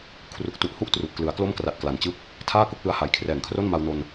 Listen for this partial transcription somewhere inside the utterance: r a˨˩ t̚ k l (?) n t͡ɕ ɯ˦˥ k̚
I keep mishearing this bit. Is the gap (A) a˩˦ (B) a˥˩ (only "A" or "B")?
A